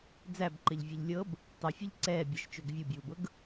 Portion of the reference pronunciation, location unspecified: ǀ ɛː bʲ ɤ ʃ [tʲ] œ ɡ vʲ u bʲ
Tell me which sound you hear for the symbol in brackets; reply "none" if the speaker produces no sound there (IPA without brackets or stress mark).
t͡ʃ